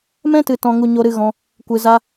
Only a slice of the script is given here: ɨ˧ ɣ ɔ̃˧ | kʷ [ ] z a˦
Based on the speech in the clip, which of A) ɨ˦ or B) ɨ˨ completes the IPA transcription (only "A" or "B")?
B